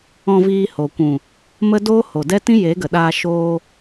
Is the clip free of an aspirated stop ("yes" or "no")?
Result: yes